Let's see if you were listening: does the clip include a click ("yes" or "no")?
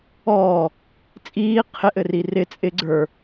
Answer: yes